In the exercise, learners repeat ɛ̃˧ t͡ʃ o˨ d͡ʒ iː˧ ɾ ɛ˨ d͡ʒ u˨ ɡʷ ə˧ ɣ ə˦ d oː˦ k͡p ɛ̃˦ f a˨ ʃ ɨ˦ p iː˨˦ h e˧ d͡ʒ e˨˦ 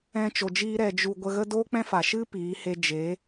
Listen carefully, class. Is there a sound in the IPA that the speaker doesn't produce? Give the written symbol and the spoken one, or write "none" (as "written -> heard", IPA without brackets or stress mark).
none